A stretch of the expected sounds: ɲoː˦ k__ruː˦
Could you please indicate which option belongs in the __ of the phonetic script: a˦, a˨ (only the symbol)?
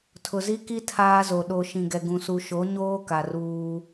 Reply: a˨